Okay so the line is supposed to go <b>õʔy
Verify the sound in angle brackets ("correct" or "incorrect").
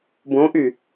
correct